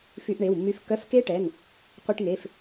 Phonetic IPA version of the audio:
f y˧ ʔ ɳ e˩˧˩ w mː y˧ f kː œ˧˥˧ f k e˦˥ ʈ ɛ˩˧˩ ŋ | qʷ i˧ ʈ ŋ e˩˧˩ f

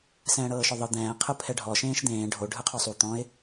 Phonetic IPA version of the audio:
s ɛ̃ː ɽ ɤː ʃ ɔ ðˤ ɯ d̪ ɛ̃ː qʰ ɯ pʰ ɛ ɖʱ ɔ ʃ ẽː ʃ d̪ ẽː ɖʱ o ɖʱ ɯ qʰ o sˤ u t̪ ɔ̃ ɪ̯

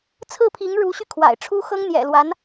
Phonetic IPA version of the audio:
t͡sʰ ɹ̩˥˩ pʰ i˧˥ ŋ ɻ u˧˥ ɕ y˧ kʰ w a̰˨˩ ɪ̯ ʈ͡ʂʰ u˥ x ɤ˥ ŋ n̪ j ɛ̰˨˩ l w a˧˥ n

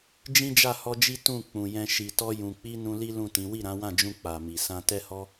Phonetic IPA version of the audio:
d͡ʒ ĩ˦ d͡ʒ a˦˨ h ɔ˧ d͡ʒ i˦ t ũ˦˨ k͡p ũ˨ j ɛ̃˧ ʃ i˨ t ɔ˧ j ũ˨ k͡p i˧ n ũ˧ l i˦ l ũ˦˨ t ĩ˨˦ w i˦˨ ɾ ã˨˦ w ã˦˨ d͡ʒ ũ˧ k͡p a˨ m i˨ s ã˧ t ɛ˦ h ɔ˦

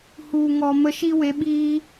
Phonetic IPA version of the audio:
h u˨ ŋ ɔ˨ m ə˧ ʃ i˦ w e˨˦ ɓ iː˦

